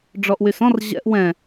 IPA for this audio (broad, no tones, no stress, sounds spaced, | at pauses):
ɖ͡ʐ ɔ ʔ w y s ɔ̃ r ʑ ɛ̰ ʔ w ɛ̃